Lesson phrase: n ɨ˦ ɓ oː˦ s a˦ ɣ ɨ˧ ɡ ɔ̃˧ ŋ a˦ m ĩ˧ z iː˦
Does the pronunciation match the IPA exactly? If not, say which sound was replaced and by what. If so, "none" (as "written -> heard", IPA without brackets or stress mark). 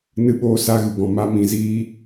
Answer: ŋ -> m